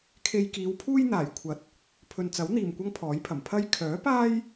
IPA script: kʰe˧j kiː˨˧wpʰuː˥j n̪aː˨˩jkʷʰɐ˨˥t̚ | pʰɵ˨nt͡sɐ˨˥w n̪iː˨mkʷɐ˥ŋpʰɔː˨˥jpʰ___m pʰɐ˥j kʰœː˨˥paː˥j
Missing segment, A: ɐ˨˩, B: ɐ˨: A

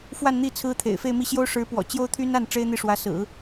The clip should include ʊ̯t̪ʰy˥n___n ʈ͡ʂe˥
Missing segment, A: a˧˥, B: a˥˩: B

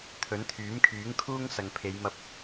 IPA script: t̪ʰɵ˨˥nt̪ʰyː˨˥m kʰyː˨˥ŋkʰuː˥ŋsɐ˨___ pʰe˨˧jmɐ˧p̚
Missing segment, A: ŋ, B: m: A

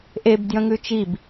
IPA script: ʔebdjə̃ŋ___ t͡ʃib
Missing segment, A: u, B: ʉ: B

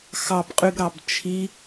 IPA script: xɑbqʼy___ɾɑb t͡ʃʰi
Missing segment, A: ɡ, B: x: A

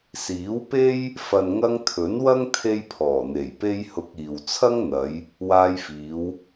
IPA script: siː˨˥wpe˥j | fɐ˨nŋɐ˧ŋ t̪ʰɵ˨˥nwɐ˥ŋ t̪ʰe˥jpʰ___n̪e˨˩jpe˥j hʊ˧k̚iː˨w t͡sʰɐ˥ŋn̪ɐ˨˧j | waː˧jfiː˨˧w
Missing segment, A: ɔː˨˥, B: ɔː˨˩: B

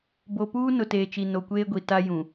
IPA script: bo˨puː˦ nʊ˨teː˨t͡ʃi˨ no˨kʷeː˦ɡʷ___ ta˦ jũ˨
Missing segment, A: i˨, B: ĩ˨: A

